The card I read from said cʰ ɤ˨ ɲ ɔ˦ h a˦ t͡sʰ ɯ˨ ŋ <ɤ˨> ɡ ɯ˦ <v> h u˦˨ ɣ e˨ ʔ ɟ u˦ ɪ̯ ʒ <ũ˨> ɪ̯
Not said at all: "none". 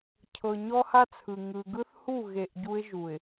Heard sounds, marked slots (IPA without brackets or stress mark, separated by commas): ɯ˨, θ, u˨